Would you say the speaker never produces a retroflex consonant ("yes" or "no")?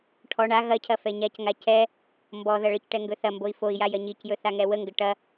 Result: no